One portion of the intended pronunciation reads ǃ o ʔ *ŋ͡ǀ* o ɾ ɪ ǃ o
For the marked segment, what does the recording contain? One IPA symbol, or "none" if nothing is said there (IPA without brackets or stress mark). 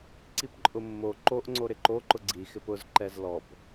ŋ͡ǀ